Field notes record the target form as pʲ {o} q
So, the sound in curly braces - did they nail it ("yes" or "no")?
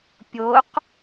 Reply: yes